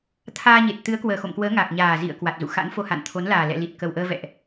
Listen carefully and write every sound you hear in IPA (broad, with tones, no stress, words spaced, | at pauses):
t̪ʰaː˧ɲe˨˩t̚ t̪ɨ˨˦ə̯ kwəː˨˩xo̰˧˨mkwəː˨˦ ŋa˨˩k̚ɲaː˨˩zḭ˧˨ə̯ kwa˨˩t̚zṵ˧˨xa̰˧˥nfo˧ ha̰˧˨nt̪ʰo˨˦nlaː˨˩ lɛ̰˧˨li˨˩t̚kə˨˩wʔəː˧ vɛ̰˧˨ʔ